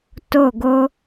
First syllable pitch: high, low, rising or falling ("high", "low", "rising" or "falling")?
falling